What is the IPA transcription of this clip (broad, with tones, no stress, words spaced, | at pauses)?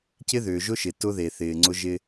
cɪ˦ ðʏː˨ ʒʊ˦ʃɪ˨ tʊ˦ðe˨θɪː˨ ŋ͡ǀʊ˦ʒɪ˦